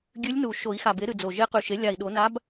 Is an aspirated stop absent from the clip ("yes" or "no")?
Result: yes